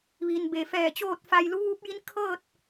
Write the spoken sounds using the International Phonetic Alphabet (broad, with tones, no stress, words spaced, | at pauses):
ʋiː˩n beː˩ fɛː˧˩t͡ɕoː˥˨t̚fa˧j lu˧˥ʋuː˧˥p̚ji˧˥n kʰɤː˥˨t̚